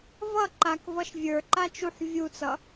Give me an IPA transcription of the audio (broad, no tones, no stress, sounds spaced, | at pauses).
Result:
v ʌ ǃ a k v ʌ ʃ vʲ ə˞ ǃ a t͡ʃ u ħ vʲ u t͡s ʌ